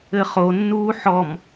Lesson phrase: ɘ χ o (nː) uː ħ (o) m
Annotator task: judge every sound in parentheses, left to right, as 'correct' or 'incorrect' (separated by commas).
correct, incorrect